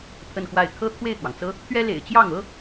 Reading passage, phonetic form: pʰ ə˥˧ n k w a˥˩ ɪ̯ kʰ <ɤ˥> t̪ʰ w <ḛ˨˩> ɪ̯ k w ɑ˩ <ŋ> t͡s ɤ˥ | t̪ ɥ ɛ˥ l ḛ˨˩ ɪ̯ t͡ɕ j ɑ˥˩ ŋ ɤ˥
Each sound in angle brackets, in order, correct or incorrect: correct, incorrect, correct

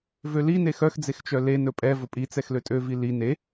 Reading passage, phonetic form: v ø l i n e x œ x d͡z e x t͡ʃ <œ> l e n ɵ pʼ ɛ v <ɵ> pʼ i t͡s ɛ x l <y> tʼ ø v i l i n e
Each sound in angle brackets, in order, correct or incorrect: correct, correct, incorrect

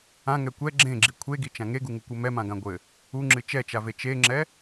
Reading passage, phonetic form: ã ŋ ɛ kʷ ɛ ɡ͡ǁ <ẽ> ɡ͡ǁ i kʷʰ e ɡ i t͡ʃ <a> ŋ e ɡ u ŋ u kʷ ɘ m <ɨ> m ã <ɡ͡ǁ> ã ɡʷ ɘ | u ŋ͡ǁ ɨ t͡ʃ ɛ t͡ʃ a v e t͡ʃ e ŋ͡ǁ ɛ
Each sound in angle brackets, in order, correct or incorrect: correct, incorrect, incorrect, incorrect

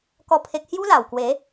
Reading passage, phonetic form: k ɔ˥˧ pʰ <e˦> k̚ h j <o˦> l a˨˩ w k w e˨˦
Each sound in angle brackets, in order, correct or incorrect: correct, incorrect

